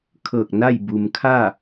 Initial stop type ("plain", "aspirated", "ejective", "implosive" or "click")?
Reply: aspirated